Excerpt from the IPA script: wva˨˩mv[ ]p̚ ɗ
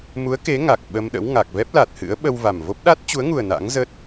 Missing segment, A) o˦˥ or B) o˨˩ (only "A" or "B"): A